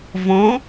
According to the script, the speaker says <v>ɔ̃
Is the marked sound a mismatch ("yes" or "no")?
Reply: no